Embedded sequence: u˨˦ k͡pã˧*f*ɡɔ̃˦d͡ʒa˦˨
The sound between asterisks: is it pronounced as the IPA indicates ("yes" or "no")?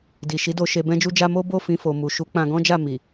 no